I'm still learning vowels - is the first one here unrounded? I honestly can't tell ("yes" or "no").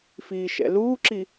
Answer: yes